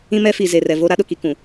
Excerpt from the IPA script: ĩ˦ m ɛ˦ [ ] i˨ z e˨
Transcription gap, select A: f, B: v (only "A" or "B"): A